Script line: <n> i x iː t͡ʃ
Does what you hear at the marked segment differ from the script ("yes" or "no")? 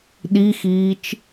yes